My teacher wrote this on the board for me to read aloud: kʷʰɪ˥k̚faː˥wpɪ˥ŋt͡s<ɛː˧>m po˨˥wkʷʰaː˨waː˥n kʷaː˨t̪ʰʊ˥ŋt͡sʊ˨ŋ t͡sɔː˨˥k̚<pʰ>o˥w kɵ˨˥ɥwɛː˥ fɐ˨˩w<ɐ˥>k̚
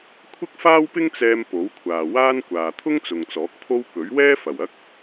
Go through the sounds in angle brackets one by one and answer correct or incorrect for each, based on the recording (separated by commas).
correct, correct, correct